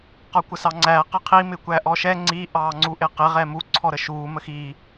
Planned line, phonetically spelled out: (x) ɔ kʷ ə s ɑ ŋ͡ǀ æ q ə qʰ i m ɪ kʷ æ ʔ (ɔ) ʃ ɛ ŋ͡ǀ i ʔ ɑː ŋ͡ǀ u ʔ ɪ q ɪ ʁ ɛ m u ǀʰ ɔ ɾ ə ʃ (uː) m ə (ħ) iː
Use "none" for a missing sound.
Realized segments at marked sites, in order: q, ɔ, uː, x

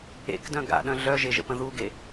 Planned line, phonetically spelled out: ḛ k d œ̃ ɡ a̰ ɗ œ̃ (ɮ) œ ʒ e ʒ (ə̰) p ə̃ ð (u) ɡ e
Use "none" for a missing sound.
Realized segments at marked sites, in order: ɮ, ə̰, u

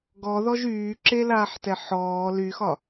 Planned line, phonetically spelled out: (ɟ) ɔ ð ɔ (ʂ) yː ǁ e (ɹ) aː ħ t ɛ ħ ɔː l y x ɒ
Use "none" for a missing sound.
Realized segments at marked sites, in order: ɡ, ʒ, l

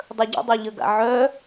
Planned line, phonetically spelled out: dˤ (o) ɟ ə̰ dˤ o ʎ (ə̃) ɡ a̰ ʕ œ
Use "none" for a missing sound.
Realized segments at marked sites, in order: ɵ, ə

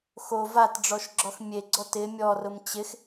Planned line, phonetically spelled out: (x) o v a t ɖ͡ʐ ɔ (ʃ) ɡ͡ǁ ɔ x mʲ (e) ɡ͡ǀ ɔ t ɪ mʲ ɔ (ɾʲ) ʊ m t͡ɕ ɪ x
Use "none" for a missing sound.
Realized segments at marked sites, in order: x, ʃ, e, r

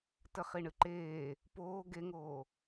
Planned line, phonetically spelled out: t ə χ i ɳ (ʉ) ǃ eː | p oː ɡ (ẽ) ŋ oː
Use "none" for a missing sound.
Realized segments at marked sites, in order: ɨ, e

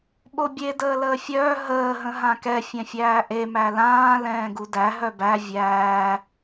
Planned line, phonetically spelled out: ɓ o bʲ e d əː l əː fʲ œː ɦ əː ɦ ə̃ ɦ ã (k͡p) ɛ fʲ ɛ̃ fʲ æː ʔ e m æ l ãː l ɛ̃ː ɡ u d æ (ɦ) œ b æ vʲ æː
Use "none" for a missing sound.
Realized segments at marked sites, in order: k, ɦ

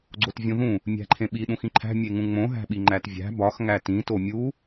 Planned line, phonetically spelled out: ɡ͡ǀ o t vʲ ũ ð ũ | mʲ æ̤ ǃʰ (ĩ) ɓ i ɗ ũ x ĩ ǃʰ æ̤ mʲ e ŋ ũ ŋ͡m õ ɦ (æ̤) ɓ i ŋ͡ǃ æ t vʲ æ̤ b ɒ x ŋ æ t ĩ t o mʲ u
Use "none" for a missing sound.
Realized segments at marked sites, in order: ẽ, æ̤

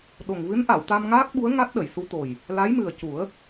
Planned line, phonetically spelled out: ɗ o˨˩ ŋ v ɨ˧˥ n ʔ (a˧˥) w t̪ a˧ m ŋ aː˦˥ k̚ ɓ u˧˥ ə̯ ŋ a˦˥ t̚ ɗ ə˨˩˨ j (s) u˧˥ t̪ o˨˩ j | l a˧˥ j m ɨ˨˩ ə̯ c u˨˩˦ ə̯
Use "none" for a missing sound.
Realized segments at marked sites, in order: a˨˩˨, s

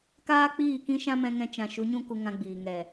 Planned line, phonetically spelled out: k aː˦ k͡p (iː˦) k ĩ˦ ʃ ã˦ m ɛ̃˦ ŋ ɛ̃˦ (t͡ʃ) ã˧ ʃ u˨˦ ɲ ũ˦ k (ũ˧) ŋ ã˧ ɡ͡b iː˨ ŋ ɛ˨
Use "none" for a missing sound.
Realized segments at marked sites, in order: iː˦˨, t͡ʃ, u˧

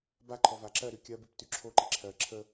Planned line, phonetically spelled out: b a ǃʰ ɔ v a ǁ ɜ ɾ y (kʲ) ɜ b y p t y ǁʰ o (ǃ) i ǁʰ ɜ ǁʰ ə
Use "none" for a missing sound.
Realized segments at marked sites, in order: kʲ, ǃ

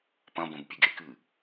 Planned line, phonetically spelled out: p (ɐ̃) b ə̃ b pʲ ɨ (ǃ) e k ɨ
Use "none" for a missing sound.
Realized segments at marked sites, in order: ɐ̃, ɡ

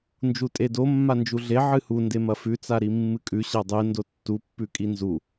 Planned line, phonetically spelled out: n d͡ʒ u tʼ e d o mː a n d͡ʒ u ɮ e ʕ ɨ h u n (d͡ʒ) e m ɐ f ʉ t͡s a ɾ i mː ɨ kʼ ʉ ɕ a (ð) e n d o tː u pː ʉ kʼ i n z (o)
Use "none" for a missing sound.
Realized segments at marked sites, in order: d, dˤ, u

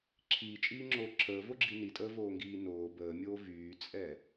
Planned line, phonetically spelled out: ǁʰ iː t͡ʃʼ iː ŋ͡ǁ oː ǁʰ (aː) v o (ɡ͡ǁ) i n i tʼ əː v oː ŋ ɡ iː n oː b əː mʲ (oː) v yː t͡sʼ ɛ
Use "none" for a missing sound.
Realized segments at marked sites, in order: əː, ɡ͡ǁ, oː

